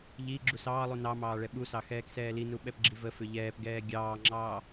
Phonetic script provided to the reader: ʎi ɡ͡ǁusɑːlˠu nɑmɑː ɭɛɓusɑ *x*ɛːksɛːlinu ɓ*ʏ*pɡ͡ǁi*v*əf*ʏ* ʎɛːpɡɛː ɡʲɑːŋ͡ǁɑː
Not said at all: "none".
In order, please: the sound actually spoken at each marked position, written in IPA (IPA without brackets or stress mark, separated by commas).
x, ɛ, v, ʏ